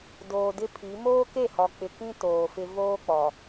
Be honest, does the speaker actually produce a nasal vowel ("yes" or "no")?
yes